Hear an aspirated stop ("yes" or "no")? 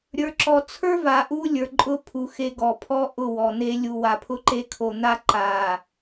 yes